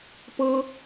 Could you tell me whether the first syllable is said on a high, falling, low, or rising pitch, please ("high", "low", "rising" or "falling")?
high